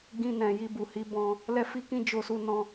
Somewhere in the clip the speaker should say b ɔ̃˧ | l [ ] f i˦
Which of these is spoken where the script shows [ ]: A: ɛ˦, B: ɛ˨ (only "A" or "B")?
A